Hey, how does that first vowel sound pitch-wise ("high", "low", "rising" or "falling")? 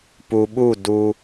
low